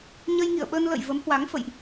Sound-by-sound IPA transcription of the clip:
ɲ ə˧ j ŋ ḭ˧˨ ə̯ ɓ ə˧ n l ə̰˧˨ j v ə˨˦ m h w a˨˦ ŋ f ə̰˧˨ j ʔ

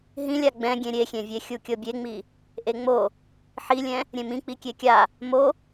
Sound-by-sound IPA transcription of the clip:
ɦ ĩ lʲ a ɡ͡b ɛ̃ ɡʲ ẽ ɾʲ e xʲ ẽ vʲ e xʲ u kʲ ɤ bʲ e ŋ͡m i | ʔ e ŋ͡m o | ħ i lʲ ɛ̃ | ɾʲ ẽ m ĩ k͡p i kʲ e kʲ a | m o

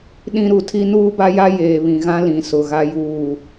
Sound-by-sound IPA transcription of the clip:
ɗ ĩ˦ ɾ u˨ tʰ i˦ n uː˦ b a˦ j a˦ j eː˨ β ĩ˨ ɣ ã˦ l ĩ˨ s ʊ˨ ɣ a˦ j uː˦˨

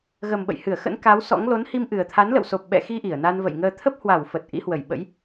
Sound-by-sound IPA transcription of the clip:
ɣ ə˨˩ m ɓ ə̰˧˨ j h ɨ˧˩ ə̯ x ə̰˧˥ n k a˨˦ w s ɔ̰˧˥ ŋ l o˨˦ n h i˧ m ʔ ɨ˨˩ ə̯ t̪ʰ a˨˦ n l ə̰˧˨ w s o˨˩ p̚ ɓ ɛ̰˧˨ x i˧ ʔ i˧˩ ə̯ n a˧ n v ə̰˧˨ j ŋ əː˧ t̪ʰ ə˦˥ p̚ h w a˧˩ w f ə˨˩ t̚ ʔ ḭ˧˥ h w ə˧˩ j ɓ ə̰˧˥ j

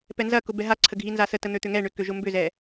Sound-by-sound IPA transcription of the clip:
p ɛ n z ɐ k ʊ b ɛ ɦ a ǀʰ ə ɡʱ i n z a s ə t ə n̪ ø t̪ ʏ ŋ ɛ ɳ ʏ k ø ʒ ʊ m b ʏ z ɛ

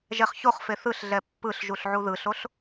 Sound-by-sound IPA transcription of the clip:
ʒ ɛ χ ç o χ f e θ ɯ ɬ ɮ ɛ pː ɯ ɬ ʒ u ɬ ʕ u ð ɯ ɬ o ɬ

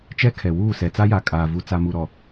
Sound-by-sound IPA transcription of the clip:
t͡ʃ ɛ˦ kʰ ɛ˨ w uː˦˨ s ɛ˨ t͡s a˦ j a˨ kʼ aː˨ v u˨ t͡s a˨ m u˨ ɾ ɔ˨

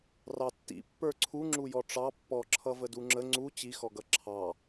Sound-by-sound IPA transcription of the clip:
r ɑ tː ḭ pː ə˞ ǀʰ u ŋ͡ǁ u j ɔ ʈ͡ʂ ɑ pː ɔ ǁʰ ʌ v ə d u ŋ͡ǁ ə ŋ͡ǀ u t͡ɕ i x ɔ ɡ ʌ ǁʰ ɑ

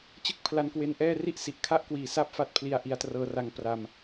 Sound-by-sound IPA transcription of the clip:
t͡ɕ ɯ˥˩ k̚ pʰ l a˧ n k w e˧ n ʔ ɛː˥˩ r i˥˩ ʔ s i˨˩ ʔ kʰ a˥˩ ʔ k w iː˨˩ s a˥˩ p̚ f a˥˩ t̚ pʰ l i˧ a̯ ʔ i˧ a̯ t r ɤː˦˥ r a˧ ŋ p r a˧ m

